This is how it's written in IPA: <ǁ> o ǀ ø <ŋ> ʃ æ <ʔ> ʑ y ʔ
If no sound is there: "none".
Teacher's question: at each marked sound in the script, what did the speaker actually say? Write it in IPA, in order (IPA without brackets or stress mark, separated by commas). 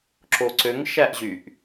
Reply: ǁ, ŋ, ʔ